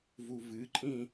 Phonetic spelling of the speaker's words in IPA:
v u v ɨ ǃʼ ĩ

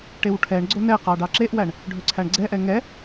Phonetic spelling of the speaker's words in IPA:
ʈ e w ʈʰ ɛ ɳ ɡ͡ǀ o n ɛ q ɑ ɖ ɑ ǁ e ʔ w æ ɳ | ɖʱ ɵ ǀʰ æ ɳ ɡ͡ǀ ɛ ʔ ɛ ŋ ɛ

